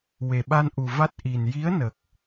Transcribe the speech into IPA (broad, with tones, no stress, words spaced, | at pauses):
we˨˩ɓa˧nʔu˨˩ va˦˥t̚ʔi˨˩n ji˧˥ə̯nə˨˩k̚